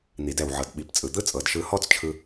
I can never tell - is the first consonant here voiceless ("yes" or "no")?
no